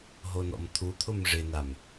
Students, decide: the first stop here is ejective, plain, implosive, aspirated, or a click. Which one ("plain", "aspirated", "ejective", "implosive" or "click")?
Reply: aspirated